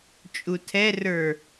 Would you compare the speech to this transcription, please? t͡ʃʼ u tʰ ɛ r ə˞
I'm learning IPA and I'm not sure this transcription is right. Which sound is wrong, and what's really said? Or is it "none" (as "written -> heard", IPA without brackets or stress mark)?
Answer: none